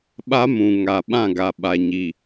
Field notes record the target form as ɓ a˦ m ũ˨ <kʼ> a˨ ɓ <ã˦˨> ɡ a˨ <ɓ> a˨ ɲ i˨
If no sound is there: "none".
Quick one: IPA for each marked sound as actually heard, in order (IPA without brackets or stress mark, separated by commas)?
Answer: ŋ, ã˦˨, ɓ